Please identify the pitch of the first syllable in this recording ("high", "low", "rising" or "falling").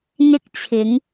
high